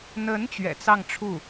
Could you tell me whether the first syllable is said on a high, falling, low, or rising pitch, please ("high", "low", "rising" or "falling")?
rising